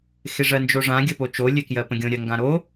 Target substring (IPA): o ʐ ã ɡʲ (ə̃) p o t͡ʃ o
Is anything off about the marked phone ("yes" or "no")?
yes